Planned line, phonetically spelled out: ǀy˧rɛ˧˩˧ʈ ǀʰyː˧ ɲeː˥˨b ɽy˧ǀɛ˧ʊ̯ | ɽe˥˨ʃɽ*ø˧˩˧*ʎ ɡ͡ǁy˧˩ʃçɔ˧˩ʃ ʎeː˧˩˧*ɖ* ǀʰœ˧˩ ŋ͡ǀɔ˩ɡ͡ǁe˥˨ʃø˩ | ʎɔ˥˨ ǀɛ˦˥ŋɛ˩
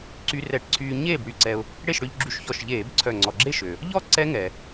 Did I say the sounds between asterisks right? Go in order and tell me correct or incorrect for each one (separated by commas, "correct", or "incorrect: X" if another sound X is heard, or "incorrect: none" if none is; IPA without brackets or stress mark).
incorrect: ø˧, incorrect: b